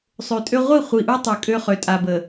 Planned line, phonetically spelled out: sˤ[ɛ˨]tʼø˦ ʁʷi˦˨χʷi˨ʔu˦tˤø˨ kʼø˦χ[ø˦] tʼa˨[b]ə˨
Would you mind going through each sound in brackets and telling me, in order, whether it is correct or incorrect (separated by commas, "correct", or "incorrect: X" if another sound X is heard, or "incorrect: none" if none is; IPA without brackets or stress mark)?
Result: incorrect: ø˨, incorrect: ø˨, correct